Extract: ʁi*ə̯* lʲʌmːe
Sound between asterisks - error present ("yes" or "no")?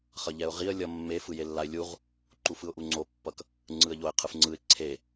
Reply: no